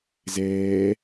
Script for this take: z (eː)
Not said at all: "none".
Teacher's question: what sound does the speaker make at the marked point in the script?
ɛː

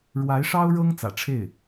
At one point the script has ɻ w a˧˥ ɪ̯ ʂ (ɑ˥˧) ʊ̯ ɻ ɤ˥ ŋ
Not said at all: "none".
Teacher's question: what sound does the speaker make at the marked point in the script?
ɑ˥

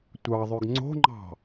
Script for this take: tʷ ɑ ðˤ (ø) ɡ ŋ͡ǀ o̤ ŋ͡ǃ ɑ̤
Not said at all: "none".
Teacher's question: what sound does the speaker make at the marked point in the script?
ø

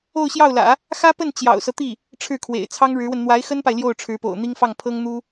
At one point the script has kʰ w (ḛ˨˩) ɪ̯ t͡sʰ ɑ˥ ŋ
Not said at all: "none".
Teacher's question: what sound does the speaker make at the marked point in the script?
ḛ˨˩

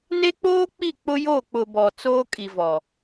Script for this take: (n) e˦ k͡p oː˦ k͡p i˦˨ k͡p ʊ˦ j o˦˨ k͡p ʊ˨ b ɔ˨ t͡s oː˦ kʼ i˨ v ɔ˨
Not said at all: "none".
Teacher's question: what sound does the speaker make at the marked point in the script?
n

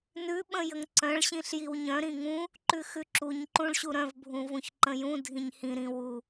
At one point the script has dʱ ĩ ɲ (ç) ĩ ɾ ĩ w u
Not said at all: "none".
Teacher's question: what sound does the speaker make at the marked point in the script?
h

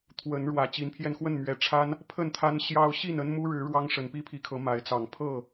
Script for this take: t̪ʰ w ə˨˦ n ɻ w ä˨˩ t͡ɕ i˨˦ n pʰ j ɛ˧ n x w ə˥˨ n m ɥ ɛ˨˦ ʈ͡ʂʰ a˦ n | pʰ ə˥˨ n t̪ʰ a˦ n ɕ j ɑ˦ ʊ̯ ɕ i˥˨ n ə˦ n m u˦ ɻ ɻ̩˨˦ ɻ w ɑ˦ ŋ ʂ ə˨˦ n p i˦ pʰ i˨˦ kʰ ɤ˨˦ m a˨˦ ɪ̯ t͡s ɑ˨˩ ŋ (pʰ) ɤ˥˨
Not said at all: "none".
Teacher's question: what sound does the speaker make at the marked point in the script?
pʰ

